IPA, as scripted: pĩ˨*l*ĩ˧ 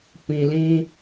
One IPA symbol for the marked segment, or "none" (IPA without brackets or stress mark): l